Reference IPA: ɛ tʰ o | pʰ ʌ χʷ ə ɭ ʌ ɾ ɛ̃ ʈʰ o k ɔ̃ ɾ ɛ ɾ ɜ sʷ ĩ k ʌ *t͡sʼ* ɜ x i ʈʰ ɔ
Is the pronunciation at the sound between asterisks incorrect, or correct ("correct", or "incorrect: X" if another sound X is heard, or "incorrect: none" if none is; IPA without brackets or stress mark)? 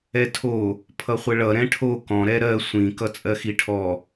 correct